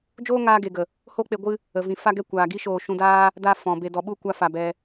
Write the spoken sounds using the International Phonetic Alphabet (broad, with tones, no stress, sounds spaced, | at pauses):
d͡ʒ oː˦ ŋ aː˧ ɡ e˨ ɡ ə˨ | h o˦ k͡p e˧ ɡʷ ɨ˦ | ə˨ v ĩ˨ f a˦ ɡ ɛ˦ kʷ aː˨ ɡ i˦ ʃ oː˧ ʃ ũ˧ d aː˦ | d a˧ f ɔ̃˨ b e˨ d ɔ˨ ɓ u˦˨ kʷ a˧ f a˨ b ɛ˧